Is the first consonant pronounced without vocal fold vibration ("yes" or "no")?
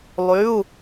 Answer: no